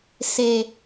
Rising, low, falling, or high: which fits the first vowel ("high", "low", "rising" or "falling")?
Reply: low